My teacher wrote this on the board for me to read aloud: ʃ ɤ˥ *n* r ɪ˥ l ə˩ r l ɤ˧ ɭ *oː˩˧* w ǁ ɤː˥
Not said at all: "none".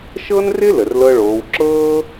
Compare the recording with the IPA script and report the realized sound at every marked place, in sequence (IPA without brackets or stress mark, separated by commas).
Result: n, oː˩˧